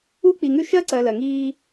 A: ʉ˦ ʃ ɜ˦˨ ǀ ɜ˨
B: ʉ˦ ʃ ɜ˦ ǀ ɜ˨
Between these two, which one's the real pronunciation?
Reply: B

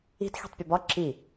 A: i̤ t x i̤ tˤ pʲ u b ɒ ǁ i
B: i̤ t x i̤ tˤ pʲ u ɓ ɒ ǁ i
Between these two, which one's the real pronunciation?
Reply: A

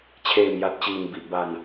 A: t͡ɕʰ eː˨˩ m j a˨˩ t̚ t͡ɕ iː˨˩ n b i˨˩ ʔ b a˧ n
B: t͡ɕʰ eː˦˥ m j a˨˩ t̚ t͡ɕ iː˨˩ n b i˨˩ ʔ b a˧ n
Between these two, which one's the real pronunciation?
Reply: A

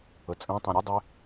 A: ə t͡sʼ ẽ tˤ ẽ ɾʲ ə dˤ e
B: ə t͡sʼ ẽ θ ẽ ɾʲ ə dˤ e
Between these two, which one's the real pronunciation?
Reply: A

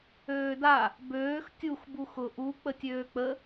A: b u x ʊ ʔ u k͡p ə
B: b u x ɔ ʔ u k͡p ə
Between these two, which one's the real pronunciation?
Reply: A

